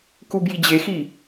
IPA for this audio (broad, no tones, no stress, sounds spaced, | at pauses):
k u b j i d͡ʑ e x i